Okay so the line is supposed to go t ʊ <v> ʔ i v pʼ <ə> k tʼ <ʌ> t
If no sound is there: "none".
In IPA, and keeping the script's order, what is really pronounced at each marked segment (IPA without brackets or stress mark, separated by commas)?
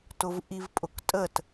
v, ʊ, ə